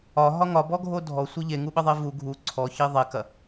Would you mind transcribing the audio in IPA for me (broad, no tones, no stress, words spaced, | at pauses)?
ɒɦɒ ŋɒbɔɡʱo dʱɔsʷɘ ʎeŋuɓɘðˤe vu ɡʱu ǀʰɔçi ðˤekɐ